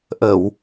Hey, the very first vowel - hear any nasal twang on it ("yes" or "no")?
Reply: no